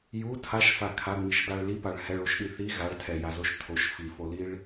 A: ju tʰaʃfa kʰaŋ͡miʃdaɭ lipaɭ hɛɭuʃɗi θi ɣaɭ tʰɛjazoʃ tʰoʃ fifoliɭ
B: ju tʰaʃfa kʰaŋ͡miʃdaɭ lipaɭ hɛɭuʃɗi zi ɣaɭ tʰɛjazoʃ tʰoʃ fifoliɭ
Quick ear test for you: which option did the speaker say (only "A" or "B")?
A